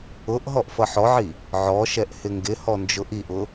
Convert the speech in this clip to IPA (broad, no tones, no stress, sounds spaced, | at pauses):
ʊ ʔ ɦ ɔ ʔ f ʌ ħ ɔ ʕ i | ʕ ɔ ʃ ɛ ʔ h ɪ ŋ ɡ ɪ h ɔ n d͡ʒ ʊ ʔ i ʔ ʊ